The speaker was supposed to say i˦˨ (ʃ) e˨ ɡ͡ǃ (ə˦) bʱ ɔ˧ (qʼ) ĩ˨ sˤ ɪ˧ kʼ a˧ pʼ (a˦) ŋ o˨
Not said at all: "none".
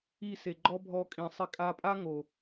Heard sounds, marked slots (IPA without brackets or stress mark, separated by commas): s, ɔ˦, kʼ, a˦